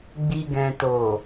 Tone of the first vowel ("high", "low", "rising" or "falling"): low